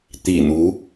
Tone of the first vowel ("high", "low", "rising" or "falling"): low